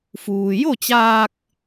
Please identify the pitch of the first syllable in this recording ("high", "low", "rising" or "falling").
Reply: low